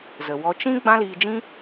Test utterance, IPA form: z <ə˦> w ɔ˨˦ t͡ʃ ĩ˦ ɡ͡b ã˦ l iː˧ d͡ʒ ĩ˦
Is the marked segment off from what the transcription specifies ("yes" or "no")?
yes